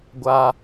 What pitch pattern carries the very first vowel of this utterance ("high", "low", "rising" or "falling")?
high